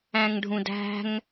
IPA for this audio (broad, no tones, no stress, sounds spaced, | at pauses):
æ̃ ŋ ɖʱ ũ d æ̤ ŋ